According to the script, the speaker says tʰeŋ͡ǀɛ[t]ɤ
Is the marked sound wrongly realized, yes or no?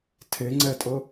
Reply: yes